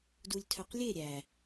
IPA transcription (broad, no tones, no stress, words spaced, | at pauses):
dulʲtʰœqlʲe ɾʲæ